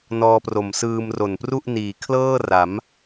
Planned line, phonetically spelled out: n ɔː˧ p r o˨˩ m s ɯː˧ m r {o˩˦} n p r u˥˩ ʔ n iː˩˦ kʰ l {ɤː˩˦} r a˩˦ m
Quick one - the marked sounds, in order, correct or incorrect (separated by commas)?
incorrect, incorrect